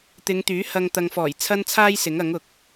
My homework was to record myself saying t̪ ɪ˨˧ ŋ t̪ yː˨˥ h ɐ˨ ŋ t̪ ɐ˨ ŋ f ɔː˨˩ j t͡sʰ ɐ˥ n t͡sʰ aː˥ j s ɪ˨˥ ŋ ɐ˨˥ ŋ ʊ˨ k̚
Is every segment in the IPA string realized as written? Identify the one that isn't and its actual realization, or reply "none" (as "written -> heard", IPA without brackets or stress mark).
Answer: none